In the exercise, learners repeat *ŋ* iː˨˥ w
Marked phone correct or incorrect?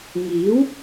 correct